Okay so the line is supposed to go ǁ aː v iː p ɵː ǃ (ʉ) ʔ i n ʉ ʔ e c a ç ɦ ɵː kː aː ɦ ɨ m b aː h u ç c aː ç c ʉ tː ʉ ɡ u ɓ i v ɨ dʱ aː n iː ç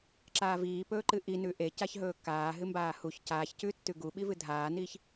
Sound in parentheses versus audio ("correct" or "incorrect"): incorrect